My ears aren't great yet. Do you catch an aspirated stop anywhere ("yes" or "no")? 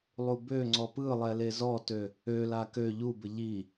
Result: no